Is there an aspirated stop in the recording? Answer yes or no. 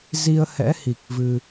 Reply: no